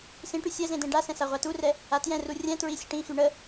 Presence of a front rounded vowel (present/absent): present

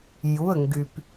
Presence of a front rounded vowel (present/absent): present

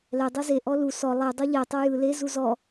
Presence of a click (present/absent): absent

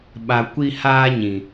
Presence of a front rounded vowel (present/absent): absent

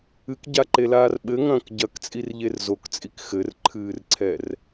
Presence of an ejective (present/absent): present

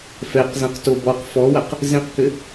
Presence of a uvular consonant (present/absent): present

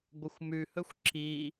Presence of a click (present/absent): present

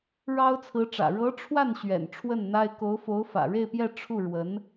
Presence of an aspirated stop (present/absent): present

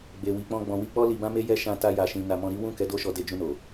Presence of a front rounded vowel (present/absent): absent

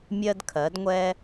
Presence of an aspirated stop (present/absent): present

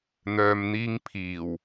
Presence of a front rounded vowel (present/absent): present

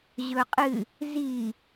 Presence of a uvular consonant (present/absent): present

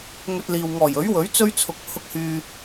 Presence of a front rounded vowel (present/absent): present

